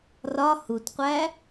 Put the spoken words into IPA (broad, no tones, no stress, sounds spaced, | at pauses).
r ɒ h u t qʷ æ